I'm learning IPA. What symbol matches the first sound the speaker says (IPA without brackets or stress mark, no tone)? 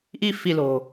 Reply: ʔ